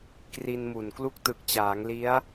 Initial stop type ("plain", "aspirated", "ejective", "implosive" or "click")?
plain